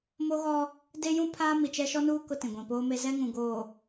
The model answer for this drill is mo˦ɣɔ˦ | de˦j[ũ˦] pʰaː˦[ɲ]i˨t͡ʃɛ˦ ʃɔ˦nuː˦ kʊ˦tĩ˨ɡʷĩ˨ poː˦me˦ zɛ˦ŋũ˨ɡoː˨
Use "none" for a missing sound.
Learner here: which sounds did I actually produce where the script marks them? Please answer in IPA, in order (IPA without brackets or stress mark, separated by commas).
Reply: ũ˦, m